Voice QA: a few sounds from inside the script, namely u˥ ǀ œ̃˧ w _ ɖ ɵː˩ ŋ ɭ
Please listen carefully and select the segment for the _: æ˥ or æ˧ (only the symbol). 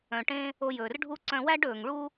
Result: æ˥